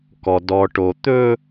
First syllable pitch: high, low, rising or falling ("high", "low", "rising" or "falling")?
low